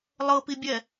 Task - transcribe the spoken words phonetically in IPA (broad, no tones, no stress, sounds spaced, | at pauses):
lˠ ɤ p i bʲ ɛ